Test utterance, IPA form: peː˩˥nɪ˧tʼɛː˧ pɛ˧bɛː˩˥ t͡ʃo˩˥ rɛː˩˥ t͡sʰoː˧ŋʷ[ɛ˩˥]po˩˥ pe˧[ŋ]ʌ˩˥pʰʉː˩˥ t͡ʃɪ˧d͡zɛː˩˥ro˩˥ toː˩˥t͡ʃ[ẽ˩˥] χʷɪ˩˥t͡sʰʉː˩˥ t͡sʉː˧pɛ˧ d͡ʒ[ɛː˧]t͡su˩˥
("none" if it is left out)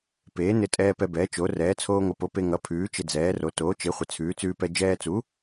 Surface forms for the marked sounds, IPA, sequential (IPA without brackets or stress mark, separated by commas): ɪ˩˥, ŋ, e˩˥, ɛː˧